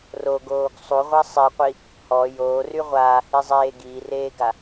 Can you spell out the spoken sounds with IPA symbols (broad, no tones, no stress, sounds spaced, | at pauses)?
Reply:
r o ɡ oː ɡ sˤ u ʁʷ a sˤ e qʷ i | h ɔ j oː r y ʁʷ aː h i zˤ eː ɡ iː r eː ɡ a